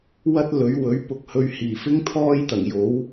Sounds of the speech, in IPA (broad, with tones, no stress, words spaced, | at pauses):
wɐ˥t̚lɵ˨˥ɥ wɵ˨˥ɥ pʊ˧k̚ hɵ˧ɥhiː˨˩ fɪ˥ŋ t̪ʰɔː˥jt̪ɐ˨˩ŋjo˨˥w